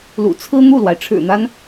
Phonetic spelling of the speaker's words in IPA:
l ṵ˨˩ t͡sʰ ɹ̩˥ n̪ u˥˩ l w a˩ ɪ̯ ʈ͡ʂʰ ɻ̩˨˩ n̪ a˦ n

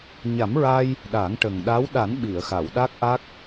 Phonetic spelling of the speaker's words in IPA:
ɲ a˨˩˦ m ɹ a˧ j | ɗ a˨˩˦ ŋ ʈ ə˨˩ ŋ ɗ a˧˥ w ɗ a˨˩˦ n ɓ i˨˩˨ ə̯ x a˨˩˨ w ɗ a˦˥ k̚ ʔ a˦˥ k̚

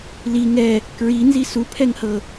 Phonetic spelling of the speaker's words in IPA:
l i ŋ ɛ | k ɹ i n z i s u pʰ ɛ ŋ h ɤ

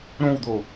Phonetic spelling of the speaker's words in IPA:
ɾ õ w d̪ o

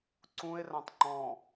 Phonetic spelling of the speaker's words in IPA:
ǀ ũ e̯ r ã tˤ ŋ͡ǃ ɔ̃

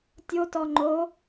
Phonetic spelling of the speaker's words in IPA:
tʲ o t ɔ ŋ͡ǃ o

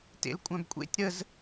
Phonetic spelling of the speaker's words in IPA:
t ḛ l kʷʼ œ̃ b kʷʼ ḛ tʲ ɾ ə z

